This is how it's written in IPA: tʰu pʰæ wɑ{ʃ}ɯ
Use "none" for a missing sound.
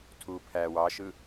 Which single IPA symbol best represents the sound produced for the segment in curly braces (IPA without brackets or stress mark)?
ʃ